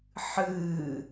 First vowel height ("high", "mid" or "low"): high